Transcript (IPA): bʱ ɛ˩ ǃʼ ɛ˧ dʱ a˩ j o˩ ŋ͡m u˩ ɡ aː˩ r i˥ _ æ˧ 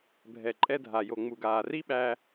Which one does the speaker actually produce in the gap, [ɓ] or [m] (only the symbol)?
ɓ